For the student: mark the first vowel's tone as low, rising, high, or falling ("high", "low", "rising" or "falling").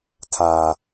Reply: low